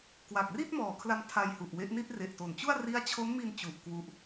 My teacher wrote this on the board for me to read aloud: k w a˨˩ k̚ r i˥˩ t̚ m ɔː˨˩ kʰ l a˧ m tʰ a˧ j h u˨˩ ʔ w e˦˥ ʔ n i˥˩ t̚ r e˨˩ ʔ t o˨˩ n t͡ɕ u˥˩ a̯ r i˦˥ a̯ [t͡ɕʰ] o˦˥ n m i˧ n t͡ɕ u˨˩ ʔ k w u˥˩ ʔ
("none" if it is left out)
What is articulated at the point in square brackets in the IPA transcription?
t͡ɕʰ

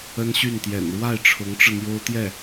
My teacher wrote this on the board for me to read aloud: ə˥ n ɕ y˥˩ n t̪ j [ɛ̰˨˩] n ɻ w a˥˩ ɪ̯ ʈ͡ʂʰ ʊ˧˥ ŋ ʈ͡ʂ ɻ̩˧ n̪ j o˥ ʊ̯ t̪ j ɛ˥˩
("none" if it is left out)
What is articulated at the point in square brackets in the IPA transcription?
ɛ̰˨˩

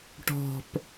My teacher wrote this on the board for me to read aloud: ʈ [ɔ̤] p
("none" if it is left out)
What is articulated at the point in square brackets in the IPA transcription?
ɔ̤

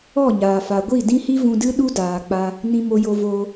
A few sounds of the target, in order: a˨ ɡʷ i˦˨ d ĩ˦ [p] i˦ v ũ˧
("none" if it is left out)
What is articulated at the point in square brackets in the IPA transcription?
h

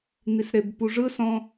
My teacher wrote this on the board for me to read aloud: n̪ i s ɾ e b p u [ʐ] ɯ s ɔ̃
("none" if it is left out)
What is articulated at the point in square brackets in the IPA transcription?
ʐ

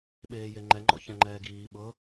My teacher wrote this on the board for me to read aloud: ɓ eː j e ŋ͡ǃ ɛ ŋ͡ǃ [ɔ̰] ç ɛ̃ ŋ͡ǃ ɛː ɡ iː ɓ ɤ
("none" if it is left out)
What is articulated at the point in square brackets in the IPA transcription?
ɔ̰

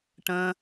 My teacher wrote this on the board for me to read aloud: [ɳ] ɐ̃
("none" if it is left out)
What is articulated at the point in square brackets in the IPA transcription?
ʈ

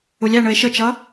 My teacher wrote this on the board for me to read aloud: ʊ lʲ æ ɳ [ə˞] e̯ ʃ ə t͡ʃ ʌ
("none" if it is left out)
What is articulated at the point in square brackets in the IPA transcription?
ə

